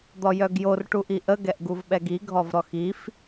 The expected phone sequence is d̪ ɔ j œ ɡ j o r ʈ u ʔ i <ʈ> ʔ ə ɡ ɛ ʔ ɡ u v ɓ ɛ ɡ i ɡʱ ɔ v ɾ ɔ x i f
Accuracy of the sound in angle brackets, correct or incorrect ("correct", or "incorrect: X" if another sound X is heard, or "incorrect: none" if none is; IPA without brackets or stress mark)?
incorrect: none